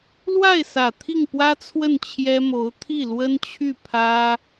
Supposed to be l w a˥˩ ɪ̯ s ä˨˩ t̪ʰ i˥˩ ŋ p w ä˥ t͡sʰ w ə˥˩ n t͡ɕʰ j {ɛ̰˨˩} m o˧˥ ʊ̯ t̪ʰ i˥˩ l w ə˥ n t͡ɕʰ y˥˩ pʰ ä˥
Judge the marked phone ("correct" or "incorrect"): incorrect